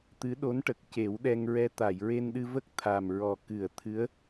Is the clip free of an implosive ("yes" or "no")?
no